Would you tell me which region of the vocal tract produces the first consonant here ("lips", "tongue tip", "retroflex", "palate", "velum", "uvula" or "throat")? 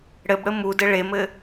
retroflex